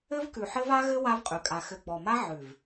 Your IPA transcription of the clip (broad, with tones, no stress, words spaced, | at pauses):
ɘ˦vkʉ˨ħɘ˦v a˦ɣɘ˦ wa˦vqʼʉ˨kʼa˨ xɘ˨ ɡ͡bɔ˨ma˦ ʕʉ˨v